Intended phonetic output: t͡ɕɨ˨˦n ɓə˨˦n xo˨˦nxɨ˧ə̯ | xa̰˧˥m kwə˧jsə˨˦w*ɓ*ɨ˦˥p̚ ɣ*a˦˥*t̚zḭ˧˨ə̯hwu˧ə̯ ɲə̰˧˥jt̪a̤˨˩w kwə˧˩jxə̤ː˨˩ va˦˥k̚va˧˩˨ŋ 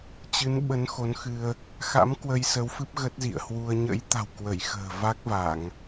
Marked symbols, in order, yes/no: no, no

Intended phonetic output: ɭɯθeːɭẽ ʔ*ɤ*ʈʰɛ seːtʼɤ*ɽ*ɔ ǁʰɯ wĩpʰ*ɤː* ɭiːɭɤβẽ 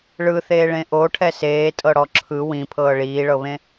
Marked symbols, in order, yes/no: no, yes, yes

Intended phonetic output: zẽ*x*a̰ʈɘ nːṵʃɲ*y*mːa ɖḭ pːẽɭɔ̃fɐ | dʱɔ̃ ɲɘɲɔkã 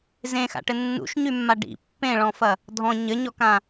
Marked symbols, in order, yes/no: yes, yes

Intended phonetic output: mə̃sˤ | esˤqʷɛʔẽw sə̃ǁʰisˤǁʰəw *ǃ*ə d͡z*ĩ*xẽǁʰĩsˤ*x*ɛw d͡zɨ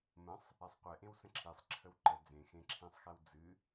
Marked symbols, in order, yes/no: yes, no, yes

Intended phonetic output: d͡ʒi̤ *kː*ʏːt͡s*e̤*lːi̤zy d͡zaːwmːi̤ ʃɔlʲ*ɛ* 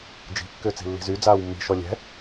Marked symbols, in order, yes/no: yes, no, no

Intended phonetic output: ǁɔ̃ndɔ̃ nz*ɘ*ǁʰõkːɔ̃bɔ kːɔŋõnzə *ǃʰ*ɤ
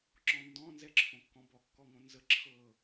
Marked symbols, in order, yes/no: no, no

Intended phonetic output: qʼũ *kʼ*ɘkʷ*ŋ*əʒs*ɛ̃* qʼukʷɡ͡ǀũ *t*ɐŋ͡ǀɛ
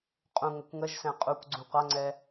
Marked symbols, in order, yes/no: no, yes, yes, no

